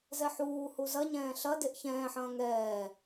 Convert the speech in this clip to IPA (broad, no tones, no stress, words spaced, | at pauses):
zɛħuː huzɐɲɛ̃ː ɬɐdeʔ çɛ̃ːħɐ̃ː ŋɛː